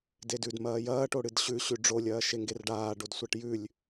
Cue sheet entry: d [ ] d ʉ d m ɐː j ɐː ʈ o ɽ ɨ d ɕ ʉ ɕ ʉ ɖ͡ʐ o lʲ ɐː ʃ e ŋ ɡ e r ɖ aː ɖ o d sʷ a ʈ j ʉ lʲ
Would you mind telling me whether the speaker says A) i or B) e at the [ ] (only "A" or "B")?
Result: B